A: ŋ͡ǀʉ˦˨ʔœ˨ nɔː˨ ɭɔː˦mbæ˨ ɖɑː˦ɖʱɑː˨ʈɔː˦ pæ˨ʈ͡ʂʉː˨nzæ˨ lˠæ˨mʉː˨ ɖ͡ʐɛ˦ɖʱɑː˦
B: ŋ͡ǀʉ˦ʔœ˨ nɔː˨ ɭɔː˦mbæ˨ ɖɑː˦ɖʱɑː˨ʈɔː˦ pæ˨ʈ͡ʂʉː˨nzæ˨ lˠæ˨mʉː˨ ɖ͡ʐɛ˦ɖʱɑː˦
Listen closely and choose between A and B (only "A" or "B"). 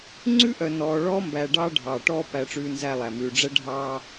B